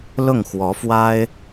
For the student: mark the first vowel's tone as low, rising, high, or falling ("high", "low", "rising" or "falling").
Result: falling